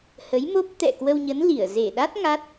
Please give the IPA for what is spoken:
h ə˨˦ j m o˦˥ p̚ t̪ ɛ̰˧˨ k w ə˧ w ɲ ə˨˦ n l i˧˩ ə̯ z e˧˩ ɗ a˦˥ t̚ ŋ a˦˥ t̚

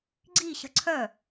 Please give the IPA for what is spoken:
ɡ͡ǀ i ɕ ə ǀʰ œ

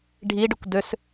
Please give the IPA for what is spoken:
ɖʱ i ɖ ʉ kʷ d ø s

